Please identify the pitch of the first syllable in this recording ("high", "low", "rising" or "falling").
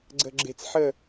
low